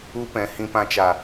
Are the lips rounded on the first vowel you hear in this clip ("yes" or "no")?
yes